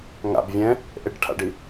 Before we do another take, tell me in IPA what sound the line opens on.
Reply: ŋ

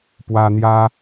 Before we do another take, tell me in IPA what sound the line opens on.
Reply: p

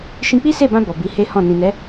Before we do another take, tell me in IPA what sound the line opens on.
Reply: ʃ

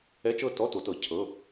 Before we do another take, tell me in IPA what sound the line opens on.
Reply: ɛ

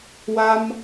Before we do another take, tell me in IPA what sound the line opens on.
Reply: w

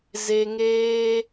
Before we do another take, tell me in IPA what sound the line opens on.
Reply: z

